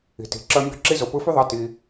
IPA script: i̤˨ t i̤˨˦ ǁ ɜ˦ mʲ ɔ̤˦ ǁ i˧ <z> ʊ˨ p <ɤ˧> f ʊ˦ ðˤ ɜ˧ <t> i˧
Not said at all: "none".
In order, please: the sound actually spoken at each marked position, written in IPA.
z, ɯ˧, t

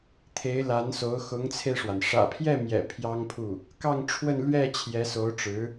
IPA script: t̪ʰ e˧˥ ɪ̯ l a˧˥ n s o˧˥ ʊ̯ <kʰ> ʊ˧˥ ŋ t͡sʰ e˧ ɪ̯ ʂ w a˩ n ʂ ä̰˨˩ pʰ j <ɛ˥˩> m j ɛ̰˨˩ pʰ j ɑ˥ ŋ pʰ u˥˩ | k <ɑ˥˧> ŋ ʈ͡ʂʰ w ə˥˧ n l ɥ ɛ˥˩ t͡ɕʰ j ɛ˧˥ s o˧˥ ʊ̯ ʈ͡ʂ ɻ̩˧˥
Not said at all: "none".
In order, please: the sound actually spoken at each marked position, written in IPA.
x, ɛ˥˩, ɑ˥˧

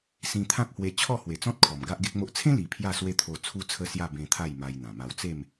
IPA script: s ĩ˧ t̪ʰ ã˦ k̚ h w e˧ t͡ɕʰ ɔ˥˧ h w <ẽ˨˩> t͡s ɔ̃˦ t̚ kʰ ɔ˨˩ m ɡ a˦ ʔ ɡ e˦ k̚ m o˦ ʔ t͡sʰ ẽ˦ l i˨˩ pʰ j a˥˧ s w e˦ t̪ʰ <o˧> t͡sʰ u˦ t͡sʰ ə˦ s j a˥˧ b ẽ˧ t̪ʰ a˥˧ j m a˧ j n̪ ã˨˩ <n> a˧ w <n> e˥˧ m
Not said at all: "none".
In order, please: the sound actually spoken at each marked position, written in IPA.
e˨˩, o˧, m, t͡s

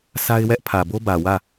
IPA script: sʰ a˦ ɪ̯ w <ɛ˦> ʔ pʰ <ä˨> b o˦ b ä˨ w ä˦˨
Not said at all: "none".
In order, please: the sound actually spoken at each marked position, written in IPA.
ɛ˦, ä˨

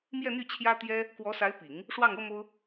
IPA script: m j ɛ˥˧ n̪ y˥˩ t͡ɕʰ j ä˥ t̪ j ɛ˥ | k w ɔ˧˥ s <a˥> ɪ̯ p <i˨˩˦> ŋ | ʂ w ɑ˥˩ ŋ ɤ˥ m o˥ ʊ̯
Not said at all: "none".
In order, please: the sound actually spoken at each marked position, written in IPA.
a˧˥, i˨˩˦

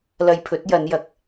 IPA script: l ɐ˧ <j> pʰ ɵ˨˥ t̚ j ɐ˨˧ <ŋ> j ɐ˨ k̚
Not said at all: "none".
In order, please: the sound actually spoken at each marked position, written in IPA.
j, n

